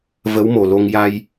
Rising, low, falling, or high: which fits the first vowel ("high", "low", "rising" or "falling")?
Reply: rising